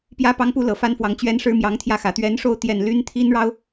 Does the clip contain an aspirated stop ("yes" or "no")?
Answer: yes